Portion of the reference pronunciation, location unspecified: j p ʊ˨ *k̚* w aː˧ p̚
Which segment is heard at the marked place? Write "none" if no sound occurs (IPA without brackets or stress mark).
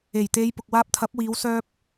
k̚